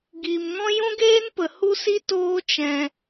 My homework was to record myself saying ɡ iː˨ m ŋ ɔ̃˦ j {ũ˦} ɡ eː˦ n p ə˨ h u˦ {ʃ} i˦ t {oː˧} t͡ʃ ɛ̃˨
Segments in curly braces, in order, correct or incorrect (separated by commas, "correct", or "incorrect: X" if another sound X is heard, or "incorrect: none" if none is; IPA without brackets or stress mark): correct, incorrect: s, correct